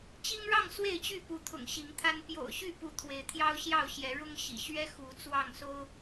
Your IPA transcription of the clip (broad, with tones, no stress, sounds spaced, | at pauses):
t͡ɕ i˦ ŋ ɻ ɑ˥˨ ŋ s w e˥˨ ɪ̯ t͡ɕ y˥˨ p u˨˦ t̪ʰ ʊ̰˨˩ ŋ ɕ i˨˦ ŋ t̪ʰ a˦ n p j o̰˨˩ ʊ̯ ɕ y˥˨ p u˨˦ t̪ʰ w e˨˦ ɪ̯ t̪ʰ j ɑ˦ ʊ̯ ɕ j ɑ˥˨ ʊ̯ ɕ j ɛ˨˦ ɻ ʊ˦ ŋ ɕ ḭ˨˩ ɕ ɥ ɛ˦ x u˨˦ t͡s w ɑ˥˨ ŋ s o˦ ʊ̯